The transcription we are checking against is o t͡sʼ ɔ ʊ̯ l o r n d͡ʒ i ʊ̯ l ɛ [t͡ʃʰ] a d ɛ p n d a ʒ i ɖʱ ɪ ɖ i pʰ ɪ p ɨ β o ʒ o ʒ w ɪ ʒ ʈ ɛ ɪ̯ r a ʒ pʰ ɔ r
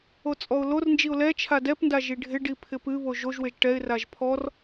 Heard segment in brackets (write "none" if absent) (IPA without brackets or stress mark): t͡ʃʰ